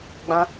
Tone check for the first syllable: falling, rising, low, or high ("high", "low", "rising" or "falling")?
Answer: high